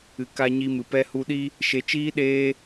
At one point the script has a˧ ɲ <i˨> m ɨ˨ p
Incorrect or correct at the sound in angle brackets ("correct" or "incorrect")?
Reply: incorrect